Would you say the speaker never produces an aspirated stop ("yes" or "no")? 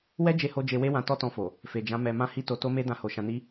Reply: yes